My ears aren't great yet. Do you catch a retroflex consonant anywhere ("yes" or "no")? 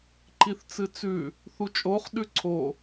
no